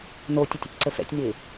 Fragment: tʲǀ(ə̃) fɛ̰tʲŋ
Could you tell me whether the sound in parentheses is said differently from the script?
yes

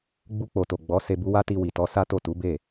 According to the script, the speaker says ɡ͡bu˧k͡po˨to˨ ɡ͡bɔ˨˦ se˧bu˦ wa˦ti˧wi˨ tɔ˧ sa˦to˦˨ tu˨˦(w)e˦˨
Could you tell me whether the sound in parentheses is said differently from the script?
yes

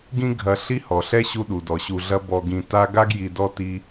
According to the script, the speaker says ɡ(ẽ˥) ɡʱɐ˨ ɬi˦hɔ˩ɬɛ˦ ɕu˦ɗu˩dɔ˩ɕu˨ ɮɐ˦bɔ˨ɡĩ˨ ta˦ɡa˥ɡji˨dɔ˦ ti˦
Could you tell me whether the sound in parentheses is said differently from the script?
yes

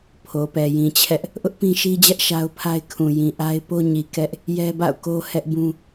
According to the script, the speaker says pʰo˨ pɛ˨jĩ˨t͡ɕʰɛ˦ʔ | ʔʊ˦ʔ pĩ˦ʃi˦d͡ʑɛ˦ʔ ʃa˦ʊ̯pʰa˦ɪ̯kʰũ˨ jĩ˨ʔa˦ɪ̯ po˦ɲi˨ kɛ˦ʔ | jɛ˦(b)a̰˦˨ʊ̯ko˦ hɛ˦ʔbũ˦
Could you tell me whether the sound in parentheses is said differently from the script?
no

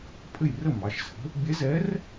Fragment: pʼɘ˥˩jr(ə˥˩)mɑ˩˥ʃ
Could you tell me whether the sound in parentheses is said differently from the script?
no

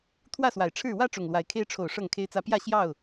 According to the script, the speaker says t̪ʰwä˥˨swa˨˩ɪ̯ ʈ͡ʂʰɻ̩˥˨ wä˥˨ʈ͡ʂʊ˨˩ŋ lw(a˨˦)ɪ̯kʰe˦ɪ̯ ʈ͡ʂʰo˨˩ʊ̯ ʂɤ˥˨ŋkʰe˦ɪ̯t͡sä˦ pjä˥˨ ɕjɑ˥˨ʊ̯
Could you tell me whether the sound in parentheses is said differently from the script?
no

